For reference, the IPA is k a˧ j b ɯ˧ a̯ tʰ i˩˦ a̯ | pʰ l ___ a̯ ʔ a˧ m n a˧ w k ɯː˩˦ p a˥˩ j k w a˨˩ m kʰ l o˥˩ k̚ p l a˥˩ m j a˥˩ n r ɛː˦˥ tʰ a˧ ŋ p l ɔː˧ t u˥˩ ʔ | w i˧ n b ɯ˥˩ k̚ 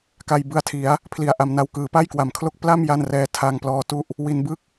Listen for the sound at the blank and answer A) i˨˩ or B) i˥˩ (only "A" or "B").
A